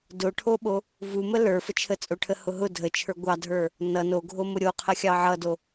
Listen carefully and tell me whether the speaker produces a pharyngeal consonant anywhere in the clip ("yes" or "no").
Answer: yes